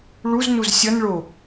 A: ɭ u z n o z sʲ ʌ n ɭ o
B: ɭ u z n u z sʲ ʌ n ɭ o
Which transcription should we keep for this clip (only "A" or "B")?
B